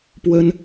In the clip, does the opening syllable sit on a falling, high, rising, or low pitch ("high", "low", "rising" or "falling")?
high